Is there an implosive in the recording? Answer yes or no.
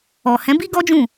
no